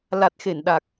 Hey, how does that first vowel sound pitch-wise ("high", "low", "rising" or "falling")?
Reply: low